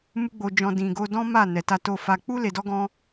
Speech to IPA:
m u˦ ɡ͡b o˧ d͡ʒ ɔ̃˧ d ĩ˨ ɡ o˧ d ɔ̃˦ m a˦˨ n ɛ˨ t a˧ t o˧ f a˧ k͡p u˦ l e˧ d ɔ˦ ɡ ɔ̃˦

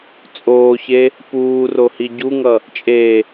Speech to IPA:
t͡sʼ oː ç e | p uː r o h i ɟ u ŋ ʌ | t͡ʃʼ e

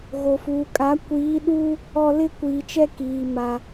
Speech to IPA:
ɣ o˨ f uː˨ kʼ a˨˦ kʷ iː˨˦ ɗ uː˦ | ɔ˦ l ɪ˦ kʷ iː˨ t͡ʃ ɛ˦ k iː˨ m a˨

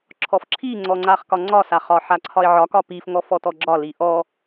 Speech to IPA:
ǁʰ ɔ f ǁʰ i ŋ͡ǀ ɔ ŋ͡ǀ a χ k ɒ ŋ͡ǀ ɒ s a χ ɒ ħ a ǀʰ ɒ ɪ̯ ʕ ɒ k ɒ p i f ŋ ɔ f ɔ t ɔ ɡ͡ǁ ɒ l i ʔ ɔ

